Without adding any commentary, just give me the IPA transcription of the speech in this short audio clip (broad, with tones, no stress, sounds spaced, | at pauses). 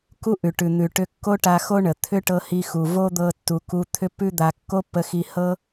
k u˥ ʔ ʉ˩ ʈ ʉ˩ n̪ ʉ˩ ʈ ʏ˧ kː o˥ ʈ a˧ x o˥ ɳ ə˩ t̪ʰ ʏ˥ ʈ ɤ˧ h i˧ x u˩ v o˥ d̪ ɤ˧ tː u˩ k u˧ t̪ʰ ʏ˥ pː ʉ˥ d̪ a˧ kː o˥ pː ə˧ x i˧ h ɤ˥